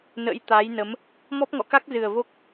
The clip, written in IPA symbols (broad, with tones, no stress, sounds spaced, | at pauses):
n ə̰˧˥ j t̪ a˨˦ j n ə˨˦ m | m ɔ˦˥ p̚ ŋ ɔ̰˧˨ k a˦˥ k̚ z ɨ˨˩ ə̯ v o˦˥ k̚